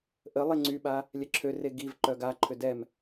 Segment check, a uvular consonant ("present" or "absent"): absent